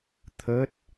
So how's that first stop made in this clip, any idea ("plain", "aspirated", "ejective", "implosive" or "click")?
aspirated